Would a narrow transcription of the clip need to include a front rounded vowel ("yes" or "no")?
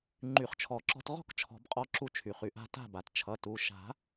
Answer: yes